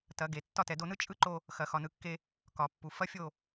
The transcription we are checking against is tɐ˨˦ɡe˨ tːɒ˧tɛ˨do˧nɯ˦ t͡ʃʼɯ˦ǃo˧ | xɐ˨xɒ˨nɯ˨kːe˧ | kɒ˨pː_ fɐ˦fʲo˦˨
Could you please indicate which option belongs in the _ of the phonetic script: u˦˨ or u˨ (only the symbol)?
u˨